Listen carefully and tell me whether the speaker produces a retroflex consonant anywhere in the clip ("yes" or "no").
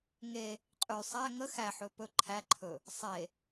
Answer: no